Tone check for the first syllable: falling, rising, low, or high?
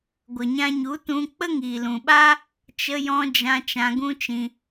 low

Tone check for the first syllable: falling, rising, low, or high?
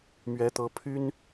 rising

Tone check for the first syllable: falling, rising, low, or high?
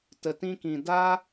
low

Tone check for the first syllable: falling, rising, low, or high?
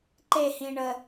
falling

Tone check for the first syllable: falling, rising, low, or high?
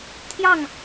falling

